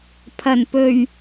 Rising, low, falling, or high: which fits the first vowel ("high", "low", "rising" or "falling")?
low